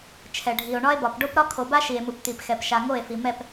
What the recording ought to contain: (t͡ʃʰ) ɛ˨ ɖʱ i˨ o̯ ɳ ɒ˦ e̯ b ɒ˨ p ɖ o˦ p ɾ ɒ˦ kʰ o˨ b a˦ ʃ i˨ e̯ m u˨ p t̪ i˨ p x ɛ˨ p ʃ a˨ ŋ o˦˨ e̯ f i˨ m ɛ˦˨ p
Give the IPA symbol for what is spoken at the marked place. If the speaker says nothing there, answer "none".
t͡ʃʰ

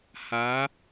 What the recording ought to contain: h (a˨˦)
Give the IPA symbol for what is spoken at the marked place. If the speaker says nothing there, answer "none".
a˨˦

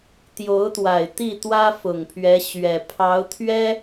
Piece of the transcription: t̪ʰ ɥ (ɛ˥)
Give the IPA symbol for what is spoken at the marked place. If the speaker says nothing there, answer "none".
ɛ˥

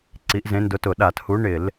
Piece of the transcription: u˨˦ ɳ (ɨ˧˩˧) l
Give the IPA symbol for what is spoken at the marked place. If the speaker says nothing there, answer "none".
ɪ˧˩˧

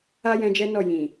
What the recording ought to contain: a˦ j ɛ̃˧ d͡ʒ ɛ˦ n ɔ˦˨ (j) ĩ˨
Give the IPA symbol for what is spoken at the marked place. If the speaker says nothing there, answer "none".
j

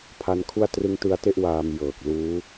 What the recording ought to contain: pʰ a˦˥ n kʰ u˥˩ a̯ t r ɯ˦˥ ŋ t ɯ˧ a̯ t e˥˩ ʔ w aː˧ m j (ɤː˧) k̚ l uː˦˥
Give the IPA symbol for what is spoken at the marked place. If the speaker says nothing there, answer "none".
ɤː˨˩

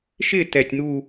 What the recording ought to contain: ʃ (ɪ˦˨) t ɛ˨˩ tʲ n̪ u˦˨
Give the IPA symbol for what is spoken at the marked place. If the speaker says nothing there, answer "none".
ɪ˦˨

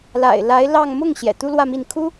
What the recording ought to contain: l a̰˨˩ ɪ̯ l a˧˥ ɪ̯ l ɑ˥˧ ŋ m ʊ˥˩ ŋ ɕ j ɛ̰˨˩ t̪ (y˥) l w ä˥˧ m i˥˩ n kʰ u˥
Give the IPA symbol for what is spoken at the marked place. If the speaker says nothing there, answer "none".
u˥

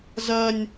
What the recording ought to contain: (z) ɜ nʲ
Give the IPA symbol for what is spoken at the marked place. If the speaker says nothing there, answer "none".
z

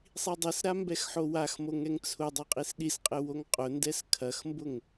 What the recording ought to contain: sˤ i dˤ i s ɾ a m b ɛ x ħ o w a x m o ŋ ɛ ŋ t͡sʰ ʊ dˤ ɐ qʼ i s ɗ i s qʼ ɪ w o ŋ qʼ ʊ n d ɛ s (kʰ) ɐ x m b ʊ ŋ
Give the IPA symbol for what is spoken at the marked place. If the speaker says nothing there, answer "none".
kʰ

